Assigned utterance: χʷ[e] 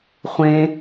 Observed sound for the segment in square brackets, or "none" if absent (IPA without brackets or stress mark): ẽ